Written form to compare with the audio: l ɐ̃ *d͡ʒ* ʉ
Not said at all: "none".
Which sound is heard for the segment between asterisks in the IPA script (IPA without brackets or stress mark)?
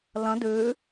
d